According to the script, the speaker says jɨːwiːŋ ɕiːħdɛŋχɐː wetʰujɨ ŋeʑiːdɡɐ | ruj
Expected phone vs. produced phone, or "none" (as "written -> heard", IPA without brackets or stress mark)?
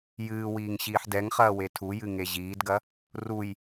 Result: none